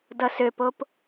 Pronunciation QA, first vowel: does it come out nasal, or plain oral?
oral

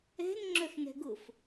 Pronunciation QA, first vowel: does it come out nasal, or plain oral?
oral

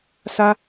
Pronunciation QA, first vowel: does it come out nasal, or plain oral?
oral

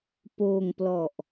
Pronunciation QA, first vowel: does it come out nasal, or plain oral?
oral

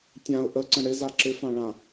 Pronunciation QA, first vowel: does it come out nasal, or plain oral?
nasal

